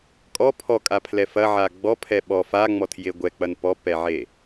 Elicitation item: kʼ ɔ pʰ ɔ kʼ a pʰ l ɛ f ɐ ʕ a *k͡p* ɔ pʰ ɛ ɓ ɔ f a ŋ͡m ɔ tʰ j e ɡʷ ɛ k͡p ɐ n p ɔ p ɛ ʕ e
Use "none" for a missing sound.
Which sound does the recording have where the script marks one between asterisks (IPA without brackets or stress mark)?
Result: ɡ͡b